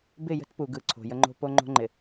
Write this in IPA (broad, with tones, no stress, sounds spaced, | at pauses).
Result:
b ɪ˦˨ j ə̤˦ t p u˨ ɡ ɯ˨ ǀʰ o̤˨ j ə˦ ŋ͡ǃ o̤˦ p o˦ ŋ͡ǃ o̤˦ ŋ͡ǃ ɪ˨